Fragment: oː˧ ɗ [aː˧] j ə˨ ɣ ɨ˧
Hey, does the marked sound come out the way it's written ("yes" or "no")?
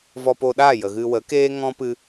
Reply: no